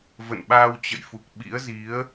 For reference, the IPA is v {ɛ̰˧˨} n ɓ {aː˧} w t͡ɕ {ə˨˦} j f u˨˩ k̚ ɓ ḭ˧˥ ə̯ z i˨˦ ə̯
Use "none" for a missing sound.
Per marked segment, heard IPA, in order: ə̰˧˨, aː˧, ə̰˧˨

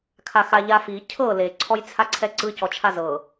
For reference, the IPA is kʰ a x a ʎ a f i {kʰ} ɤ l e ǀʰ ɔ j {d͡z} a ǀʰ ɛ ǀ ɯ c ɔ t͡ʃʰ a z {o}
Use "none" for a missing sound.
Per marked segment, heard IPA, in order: cʰ, t͡sʰ, ɤ

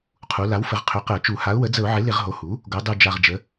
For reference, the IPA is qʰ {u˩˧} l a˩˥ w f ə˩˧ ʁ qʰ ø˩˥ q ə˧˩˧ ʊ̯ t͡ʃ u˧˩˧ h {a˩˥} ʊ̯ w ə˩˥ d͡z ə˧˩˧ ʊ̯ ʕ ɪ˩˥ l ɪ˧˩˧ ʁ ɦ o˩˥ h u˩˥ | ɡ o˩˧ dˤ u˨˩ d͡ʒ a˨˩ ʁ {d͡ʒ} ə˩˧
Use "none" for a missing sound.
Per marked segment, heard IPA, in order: u˩˧, a˩˥, d͡ʒ

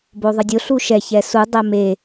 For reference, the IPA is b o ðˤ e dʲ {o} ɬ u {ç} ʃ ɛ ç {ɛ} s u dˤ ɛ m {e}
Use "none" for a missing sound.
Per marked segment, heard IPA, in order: o, none, ɛ, e

